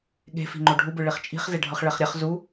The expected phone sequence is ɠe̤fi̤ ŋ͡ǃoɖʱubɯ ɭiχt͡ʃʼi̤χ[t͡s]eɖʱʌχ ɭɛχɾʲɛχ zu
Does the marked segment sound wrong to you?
yes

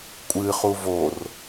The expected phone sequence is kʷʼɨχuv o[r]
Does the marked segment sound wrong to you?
no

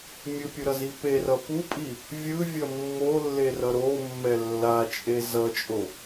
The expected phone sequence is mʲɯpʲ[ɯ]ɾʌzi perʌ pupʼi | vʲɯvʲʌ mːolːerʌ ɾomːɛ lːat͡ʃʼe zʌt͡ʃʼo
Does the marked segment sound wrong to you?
no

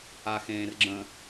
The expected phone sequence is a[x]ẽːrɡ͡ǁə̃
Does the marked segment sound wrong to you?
no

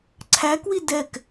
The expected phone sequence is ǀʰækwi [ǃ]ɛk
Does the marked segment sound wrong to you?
yes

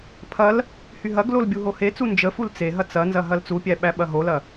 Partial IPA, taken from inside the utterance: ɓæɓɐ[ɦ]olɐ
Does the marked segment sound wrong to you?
no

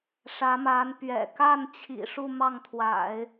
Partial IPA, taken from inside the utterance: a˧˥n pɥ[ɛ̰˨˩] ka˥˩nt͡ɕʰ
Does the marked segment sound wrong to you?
no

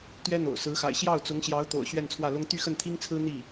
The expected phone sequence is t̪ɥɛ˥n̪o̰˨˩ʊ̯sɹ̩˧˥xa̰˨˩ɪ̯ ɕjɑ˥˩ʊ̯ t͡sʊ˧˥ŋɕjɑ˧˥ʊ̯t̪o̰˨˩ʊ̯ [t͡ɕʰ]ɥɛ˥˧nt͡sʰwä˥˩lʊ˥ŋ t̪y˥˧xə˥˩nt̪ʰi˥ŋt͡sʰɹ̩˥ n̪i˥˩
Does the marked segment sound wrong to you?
yes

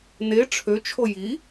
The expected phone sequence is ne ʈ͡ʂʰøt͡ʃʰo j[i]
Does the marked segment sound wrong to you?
no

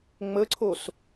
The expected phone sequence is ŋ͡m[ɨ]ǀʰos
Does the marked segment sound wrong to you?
yes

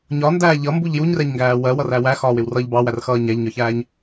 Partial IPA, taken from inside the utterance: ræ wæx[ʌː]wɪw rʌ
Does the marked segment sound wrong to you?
yes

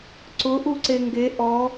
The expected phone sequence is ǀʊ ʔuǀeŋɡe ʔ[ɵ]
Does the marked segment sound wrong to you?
yes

